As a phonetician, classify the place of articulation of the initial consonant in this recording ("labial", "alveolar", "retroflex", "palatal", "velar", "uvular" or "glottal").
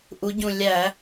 glottal